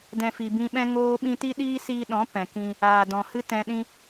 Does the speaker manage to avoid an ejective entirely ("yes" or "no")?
yes